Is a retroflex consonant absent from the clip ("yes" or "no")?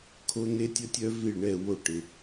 no